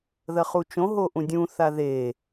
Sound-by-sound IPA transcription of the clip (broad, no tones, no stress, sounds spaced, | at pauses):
ð ɐ χ u t͡ʃ õ ɦ o ʔ ũ dʲ ũ θ a ð e